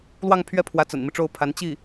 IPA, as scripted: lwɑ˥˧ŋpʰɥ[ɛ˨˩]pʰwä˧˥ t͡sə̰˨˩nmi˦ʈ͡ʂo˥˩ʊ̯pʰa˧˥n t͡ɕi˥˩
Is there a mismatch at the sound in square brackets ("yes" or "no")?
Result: yes